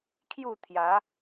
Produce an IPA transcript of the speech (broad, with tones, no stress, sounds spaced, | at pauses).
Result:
kʰ j u˥˧ t̪ʰ j a˨˦